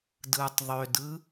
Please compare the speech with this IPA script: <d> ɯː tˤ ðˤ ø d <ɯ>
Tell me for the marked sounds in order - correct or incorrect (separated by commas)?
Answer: correct, correct